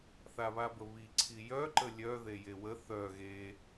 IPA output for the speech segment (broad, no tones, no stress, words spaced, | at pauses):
θaβabəβi ǀʰijœ ǃəlʲœ ðejewə θœ ɣe